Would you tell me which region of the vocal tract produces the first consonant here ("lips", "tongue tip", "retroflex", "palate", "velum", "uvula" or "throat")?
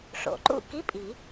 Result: retroflex